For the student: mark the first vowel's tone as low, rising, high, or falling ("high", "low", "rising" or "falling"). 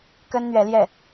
high